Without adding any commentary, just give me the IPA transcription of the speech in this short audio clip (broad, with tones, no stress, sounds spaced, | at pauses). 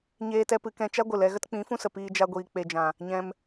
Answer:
ɲ eː˦ t ɛ˦ p ɨ˨˦ k ɛ̃˧ t͡ʃ a˦ ɡʷ ɨ˨ l ɛ˧ ɣ ə˦ t k͡p ĩ˨˦ f ũ˦ s ə˨ p iː˧ d͡ʒ a˧ ɡʷ iː˨ k͡p e˨ d͡ʒ ã˨ | ɲ ɛ̃˧ m